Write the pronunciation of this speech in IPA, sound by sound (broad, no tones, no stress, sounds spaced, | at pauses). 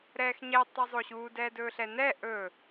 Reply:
ɾ ɛː x ɲ ɛ tˤ ɛ zˤ o ɕ uː d ɛː d ɵː ɬ ɛ n ɛː ʔ ɵ